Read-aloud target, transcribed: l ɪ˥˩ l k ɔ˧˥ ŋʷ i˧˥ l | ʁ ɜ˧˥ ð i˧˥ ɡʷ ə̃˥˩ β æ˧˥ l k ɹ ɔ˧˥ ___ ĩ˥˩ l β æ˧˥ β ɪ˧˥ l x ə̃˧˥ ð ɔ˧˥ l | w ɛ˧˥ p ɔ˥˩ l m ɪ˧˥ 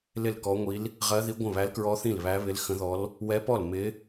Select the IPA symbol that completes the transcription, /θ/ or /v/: θ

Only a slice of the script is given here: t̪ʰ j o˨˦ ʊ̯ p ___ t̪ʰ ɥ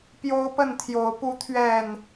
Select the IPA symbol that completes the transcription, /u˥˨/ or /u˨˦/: u˨˦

